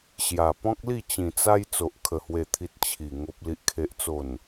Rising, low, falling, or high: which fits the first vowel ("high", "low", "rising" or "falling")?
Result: low